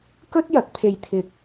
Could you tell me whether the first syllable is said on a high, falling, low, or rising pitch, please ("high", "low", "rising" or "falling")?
high